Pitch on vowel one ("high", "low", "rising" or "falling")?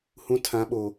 high